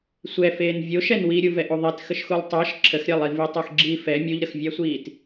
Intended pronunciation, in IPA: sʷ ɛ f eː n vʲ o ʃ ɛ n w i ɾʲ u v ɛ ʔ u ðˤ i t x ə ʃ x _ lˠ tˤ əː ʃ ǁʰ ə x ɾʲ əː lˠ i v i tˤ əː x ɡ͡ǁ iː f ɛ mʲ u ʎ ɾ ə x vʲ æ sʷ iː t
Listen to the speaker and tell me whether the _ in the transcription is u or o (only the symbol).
u